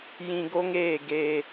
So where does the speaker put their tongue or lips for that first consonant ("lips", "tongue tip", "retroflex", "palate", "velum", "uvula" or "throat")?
palate